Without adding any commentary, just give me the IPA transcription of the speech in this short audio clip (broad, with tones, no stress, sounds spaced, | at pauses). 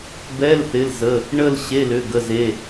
b ɛ˧˥˧ l θ ɪ˩˧˩ l z ə˩˧˩ | ɳ ə˥˧ l ɕ e˧˥˧ l ʏ˩˧˩ ɡ ə˩˧˩ z e˩˧˩